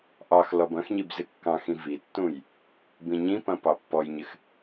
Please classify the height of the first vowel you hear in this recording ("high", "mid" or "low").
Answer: low